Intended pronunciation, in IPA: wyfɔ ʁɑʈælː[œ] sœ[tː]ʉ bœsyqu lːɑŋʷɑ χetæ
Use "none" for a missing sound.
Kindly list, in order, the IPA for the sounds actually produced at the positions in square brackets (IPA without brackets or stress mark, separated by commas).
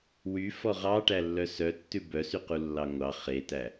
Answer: œ, tː